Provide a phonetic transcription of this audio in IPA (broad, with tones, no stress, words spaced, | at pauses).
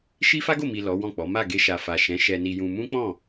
ʃi˦fa˦ɡo˦˨mi˨ lɔ˨˦wɔ̃˦˨k͡pɔ˨˦ ma˦˨ɡe˧ʃa˨ fa˨ʃɛ̃˨˦ ʃɛ˧ni˧jũ˧ mũ˦k͡pɔ̃˦˨